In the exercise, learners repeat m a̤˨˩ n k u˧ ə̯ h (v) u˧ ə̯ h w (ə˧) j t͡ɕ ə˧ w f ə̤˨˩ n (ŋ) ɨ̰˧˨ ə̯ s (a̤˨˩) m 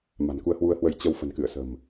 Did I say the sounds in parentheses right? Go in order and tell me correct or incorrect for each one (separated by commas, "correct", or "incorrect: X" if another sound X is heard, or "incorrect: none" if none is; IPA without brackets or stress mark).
incorrect: w, correct, incorrect: k, incorrect: ə̤˨˩